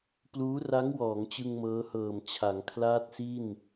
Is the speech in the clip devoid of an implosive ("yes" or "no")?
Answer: yes